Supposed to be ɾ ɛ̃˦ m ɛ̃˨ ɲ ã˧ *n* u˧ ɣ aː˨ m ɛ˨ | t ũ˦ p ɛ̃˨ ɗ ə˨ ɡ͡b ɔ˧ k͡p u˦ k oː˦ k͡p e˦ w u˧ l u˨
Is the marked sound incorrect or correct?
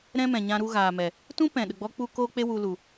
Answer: incorrect